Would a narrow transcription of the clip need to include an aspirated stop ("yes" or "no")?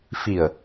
no